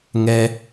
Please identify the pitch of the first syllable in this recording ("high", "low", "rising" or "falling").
high